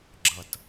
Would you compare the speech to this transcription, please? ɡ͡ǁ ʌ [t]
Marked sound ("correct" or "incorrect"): correct